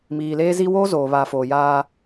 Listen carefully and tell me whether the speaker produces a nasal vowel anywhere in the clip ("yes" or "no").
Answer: no